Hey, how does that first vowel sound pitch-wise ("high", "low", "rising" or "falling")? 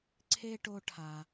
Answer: high